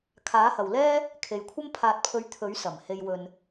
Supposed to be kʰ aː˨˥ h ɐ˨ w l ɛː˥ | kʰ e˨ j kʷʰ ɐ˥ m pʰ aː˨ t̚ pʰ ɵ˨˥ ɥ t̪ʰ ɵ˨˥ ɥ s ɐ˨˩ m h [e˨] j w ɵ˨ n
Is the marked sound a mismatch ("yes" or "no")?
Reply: no